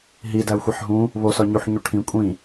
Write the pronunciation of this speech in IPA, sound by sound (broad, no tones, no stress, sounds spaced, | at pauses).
ɦ i d æ u̯ xʷ i ħ ɦ ũ | β o s ɒ ɲ u ħ ɲ u ʈʰ ĩ kʷʼ ĩ